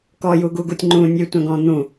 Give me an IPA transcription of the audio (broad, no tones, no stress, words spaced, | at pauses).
kɔjuɡuɡutʲ ŋ͡ǃũ nʲʉtʷɛ̃ɡɔ̃ n̪ũ